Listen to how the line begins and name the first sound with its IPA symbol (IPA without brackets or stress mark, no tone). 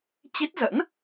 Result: t͡ɕ